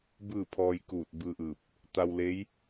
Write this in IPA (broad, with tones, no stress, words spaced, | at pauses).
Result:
bɯː˥˨pʰɔː˧jkuː˧˩t̚ bɯː˧ʔɯː˧˩p̚ | t̪a˧wle˧˥j